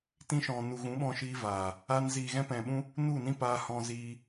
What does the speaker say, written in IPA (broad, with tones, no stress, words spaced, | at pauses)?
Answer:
tĩ˧ʃɔ̃˨ nu˨ɣũ˨˦ɓɔ̃˧ ʃiː˧vaː˨ | a˧n ziː˨ɣɛ̃˧ pɛ̃˨ɓũ˧ | nu˦˨nĩ˦paː˧ hɔ̃˧ziː˧